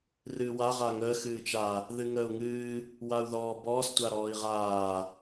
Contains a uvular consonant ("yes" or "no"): yes